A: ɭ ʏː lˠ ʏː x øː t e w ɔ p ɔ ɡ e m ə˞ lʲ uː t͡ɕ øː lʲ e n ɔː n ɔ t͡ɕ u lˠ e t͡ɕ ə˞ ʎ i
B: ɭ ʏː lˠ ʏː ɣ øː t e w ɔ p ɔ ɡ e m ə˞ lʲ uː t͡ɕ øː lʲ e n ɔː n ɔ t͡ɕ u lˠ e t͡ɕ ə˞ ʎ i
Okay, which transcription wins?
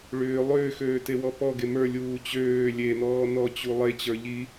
A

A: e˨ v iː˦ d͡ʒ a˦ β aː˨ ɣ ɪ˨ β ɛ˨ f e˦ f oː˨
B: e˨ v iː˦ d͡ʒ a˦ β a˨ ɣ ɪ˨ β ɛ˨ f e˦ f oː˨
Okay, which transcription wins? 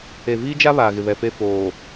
A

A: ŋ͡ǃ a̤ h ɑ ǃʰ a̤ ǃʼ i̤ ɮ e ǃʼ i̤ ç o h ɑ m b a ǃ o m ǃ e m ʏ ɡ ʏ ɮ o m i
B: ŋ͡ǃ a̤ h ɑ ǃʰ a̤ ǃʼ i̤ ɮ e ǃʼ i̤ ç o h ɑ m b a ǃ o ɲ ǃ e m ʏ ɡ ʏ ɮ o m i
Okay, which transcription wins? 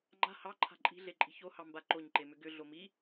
B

